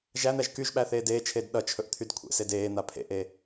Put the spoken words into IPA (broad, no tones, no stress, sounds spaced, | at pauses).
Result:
ʒ æ n̪ æ ʒ k y ʒ ɓ æ θ eː d eː t͡ʃʰ eː d ɗ ʌ t͡ʃʰ ɵ ʔ t̪ʰ y d kʷʰ ḛ s e d eː n̪ a pʰ ḛ ʔ e